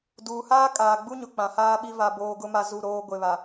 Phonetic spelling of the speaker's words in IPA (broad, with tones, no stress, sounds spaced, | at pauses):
d uː˨ h aː˦ kʼ aː˨ ɡ͡b u˦ ɲ ʊ˨ k͡p ã˨ h aː˦ ɓ i˦ v a˨ b oː˨ ɡ ʊ˦ m a˨ z u˦˨ ɾ oː˦ ɡʷ e˨ β a˨